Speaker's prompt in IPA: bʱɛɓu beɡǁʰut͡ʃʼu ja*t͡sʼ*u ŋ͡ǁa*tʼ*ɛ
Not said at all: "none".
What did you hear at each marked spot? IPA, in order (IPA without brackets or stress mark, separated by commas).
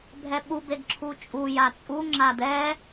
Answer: t͡sʼ, d̪